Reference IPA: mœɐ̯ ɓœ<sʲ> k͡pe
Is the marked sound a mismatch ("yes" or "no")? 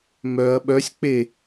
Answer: no